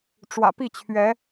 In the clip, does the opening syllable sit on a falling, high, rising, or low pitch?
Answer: low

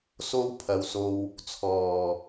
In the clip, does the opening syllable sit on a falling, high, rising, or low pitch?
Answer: high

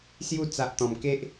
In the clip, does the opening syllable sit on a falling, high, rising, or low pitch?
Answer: falling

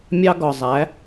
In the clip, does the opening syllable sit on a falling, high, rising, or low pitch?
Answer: high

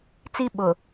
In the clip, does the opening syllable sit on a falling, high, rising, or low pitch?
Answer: high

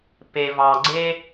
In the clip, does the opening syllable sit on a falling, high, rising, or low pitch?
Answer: low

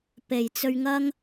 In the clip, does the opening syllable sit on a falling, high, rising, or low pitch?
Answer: low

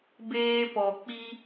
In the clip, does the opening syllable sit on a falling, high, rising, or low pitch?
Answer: high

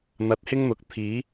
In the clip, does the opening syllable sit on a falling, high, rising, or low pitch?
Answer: rising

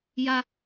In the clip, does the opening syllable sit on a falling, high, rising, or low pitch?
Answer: high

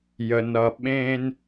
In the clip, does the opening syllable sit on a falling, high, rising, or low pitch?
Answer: low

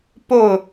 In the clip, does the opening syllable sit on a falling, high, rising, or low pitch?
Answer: falling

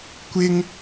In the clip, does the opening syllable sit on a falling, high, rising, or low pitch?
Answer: high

